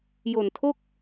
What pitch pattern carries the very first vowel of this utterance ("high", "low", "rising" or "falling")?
low